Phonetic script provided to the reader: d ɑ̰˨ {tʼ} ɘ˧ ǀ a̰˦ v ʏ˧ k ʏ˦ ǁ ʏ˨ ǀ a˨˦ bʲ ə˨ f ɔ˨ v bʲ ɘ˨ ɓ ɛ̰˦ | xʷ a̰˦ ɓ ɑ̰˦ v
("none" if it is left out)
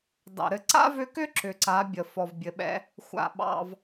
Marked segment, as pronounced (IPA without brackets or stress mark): ɾ